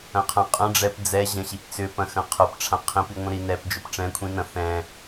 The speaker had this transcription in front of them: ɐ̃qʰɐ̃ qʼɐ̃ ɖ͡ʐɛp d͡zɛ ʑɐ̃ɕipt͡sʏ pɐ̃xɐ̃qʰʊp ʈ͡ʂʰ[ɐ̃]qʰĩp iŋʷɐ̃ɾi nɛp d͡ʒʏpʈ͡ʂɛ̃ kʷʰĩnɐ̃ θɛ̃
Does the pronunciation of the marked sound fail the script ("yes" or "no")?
yes